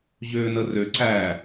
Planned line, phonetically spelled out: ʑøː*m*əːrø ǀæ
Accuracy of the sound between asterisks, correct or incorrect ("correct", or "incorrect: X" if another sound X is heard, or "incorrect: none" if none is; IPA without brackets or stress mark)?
incorrect: n